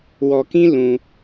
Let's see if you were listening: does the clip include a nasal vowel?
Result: yes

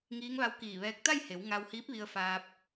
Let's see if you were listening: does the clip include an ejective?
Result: no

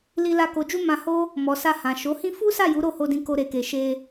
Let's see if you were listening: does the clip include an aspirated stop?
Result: no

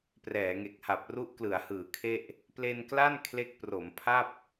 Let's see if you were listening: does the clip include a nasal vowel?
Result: no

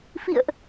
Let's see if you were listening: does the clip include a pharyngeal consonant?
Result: no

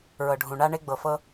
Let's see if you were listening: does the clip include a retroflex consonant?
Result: yes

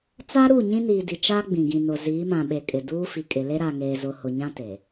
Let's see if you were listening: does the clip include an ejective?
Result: yes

